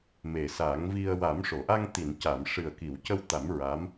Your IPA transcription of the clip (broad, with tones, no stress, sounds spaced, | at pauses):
m e˨˩ s a˨˩˦ ŋ v i˧ ə̯ w a˨˩˦ m ʂ o˨˩˨ ʔ a˧ ŋ t̪ i˨˩˨ n c a˨˩˨ m ʂ ɨ˨˩ ə̯ k i˨˩˨ w c ə˧ w t̪ a˨˩˦ m ɹ a˧˥ m